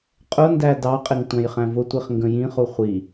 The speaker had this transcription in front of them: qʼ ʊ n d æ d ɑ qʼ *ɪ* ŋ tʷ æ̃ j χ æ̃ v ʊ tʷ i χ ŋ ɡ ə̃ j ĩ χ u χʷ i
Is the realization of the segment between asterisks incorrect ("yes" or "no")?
no